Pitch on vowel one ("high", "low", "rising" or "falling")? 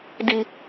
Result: high